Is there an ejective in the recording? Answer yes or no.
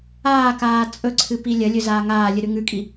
yes